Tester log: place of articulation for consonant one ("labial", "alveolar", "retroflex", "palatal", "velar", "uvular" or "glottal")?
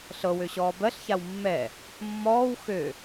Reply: alveolar